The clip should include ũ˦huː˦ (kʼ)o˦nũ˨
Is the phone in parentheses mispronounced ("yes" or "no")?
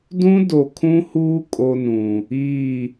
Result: no